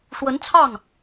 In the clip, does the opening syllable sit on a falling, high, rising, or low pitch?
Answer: rising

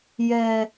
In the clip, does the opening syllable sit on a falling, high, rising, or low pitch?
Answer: low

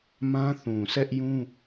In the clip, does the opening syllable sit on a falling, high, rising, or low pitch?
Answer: high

